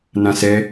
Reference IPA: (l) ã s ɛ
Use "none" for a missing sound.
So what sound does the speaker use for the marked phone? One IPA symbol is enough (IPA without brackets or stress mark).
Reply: n